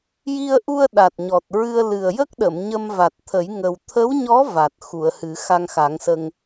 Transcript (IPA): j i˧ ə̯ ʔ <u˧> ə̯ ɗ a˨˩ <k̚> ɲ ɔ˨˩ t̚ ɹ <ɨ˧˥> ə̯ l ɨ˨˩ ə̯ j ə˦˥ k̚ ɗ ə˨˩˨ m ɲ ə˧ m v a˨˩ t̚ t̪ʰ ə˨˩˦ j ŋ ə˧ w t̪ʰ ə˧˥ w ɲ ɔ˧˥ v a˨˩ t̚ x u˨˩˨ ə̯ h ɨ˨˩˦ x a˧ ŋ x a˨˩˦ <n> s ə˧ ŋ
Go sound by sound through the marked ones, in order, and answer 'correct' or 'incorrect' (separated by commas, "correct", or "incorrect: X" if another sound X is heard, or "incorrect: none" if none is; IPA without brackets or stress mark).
correct, incorrect: t̚, incorrect: ɨ˧, incorrect: ŋ